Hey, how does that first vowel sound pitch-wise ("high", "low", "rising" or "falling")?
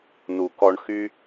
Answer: low